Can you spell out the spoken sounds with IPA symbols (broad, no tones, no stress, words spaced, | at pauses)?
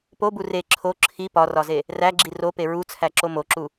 pobu re ǁʰo ǁʰi pɒrɒze | ræɡ͡ǁi rope ɹut͡sʰæǁo moǁu